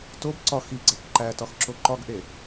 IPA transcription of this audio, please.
t o b ǀ ɒ x i ɡ͡ǀ æ k ǃ æ t ɒ x ǁ o ǃ ɒ ɡ ʔ e

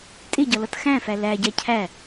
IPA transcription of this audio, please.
tʼ ɪ ɟ ʌ l ʌ t x æ̃ f æ l æ ɟ æ cʰ æ

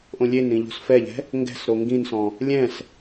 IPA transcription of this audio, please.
ʔ õ lʲ e n ɾ ĩ ʎ o̤ s f ɛ ʎ ɛ̤ | ŋ ɡ ɛ̤ s ɾ o ŋ ɡ ĩ n s ɔ̃ | lʲ ɛ̃ s

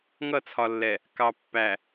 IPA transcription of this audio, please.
ŋ ʌ˦˨ t͡sʰ ɒ˨ lː ɛ˨ | k ɑ˨ pː æ˨

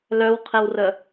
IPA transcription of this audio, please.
l œ w qʰ e w r ə

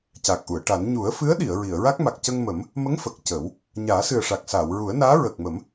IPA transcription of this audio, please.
c a˨˩ k̚ ʔ u˨˩˨ ə̯ ʈ a˨˩˦ n ɲ u˨˩˦ ə̯ f ɨ˧˥ ə̯ ɗ i˨˩˨ ə̯ ɹ i˨˩˨ ə̯ ɹ a˦˥ k̚ m a˨˩ k̚ c ə˧ ŋ m ə˨˩˦ m | m ə˧˥ ŋ f ə˨˩ k̚ c ə˨˩˦ w | ɲ aː˨˩˦ s ɨ˨˩ ə̯ ʂ a˨˩ k̚ s aː˨˩˨ w ɹ u˨˩˦ ə̯ n aː˧˥ ɹ əː˨˩ k̚ m ə˨˩˦ m

